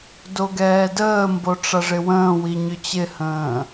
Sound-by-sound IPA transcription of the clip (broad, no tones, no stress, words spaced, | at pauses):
doɡɛːdəːmbo ʈ͡ʂɐʐɪwə̃ːwi ɲʏt͡ɕɪhə̃ː